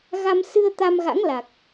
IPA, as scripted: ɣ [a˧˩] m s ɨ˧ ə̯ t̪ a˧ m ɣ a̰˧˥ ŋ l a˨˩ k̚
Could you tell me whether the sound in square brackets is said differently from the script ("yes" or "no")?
yes